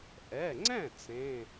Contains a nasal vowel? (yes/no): yes